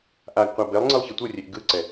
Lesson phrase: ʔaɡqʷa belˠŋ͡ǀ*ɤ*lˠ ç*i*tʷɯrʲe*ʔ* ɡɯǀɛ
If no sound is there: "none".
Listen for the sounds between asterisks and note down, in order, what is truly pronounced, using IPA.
ɯ, i, ʔ

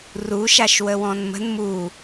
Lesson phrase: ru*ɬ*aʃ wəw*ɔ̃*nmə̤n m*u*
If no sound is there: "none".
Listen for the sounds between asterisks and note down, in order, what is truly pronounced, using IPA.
ʃ, ɔ̃, u

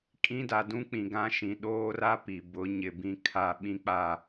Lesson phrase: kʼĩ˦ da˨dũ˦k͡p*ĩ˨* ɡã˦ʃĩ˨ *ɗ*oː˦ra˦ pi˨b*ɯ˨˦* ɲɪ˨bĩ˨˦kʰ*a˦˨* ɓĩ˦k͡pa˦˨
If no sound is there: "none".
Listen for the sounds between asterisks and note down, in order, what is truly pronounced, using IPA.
ĩ˨, ɗ, ʊ˨˦, a˦

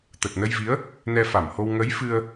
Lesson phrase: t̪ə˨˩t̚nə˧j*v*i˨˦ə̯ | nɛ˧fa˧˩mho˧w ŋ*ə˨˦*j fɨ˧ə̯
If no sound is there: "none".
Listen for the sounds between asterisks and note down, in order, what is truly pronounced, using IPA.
v, ə˨˦

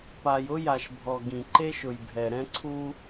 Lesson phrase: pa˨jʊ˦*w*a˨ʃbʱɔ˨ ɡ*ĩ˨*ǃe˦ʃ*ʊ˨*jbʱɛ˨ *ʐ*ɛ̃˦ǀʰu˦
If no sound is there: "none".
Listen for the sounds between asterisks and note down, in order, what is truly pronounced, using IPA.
j, ĩ˨, ʊ˨, ɾ

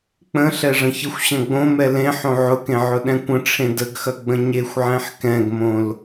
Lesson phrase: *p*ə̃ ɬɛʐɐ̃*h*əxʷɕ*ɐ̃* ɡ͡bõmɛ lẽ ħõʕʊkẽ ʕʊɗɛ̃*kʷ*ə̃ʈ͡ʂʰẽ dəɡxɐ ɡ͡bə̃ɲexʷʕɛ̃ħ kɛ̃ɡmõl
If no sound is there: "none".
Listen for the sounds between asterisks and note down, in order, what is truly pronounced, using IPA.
k͡p, ç, ɐ̃, kʷ

